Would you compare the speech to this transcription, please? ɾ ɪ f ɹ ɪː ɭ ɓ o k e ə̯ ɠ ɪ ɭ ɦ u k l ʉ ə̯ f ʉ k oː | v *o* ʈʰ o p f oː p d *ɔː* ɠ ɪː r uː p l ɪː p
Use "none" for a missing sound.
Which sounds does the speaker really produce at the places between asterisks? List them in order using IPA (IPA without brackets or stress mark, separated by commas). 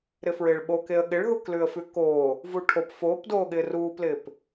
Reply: u, oː